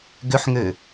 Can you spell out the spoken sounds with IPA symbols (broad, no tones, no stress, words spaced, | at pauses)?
ɡʏħŋø